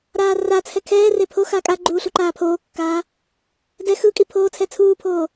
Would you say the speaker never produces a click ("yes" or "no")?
no